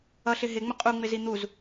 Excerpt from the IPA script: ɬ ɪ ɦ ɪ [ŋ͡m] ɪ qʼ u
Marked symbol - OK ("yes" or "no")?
yes